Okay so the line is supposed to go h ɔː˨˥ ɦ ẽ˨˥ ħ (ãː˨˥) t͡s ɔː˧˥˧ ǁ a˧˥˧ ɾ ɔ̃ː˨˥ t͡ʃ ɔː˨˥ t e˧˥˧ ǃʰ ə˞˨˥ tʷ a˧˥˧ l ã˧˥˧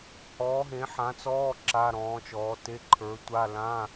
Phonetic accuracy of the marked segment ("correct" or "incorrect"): incorrect